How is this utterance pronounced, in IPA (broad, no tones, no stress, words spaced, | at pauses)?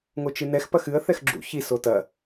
ŋot͡ʃɨnɛx pɐxɨə̯ θɛxɡ͡ǁṵ çi sotɐ